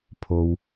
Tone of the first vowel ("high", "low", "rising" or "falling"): low